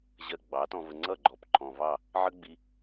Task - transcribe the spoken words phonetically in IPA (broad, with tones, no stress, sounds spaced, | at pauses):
ʑ ɜ˧ ɡ͡b ɑ˨˦ t ɔ̃˧ v ə˧ ŋ͡ǀ ʌ˦˨ ɡ͡ǃ ɔ˨ p ǃʰ ɔ̃˨ v ɑ˦˨ | ʕ ə˦ ɡ͡b i˧